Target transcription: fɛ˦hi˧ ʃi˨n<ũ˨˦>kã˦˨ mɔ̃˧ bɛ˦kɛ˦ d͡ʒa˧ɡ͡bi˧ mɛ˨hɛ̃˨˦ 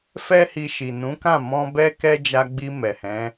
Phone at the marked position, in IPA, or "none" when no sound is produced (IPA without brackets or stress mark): ũ˨˦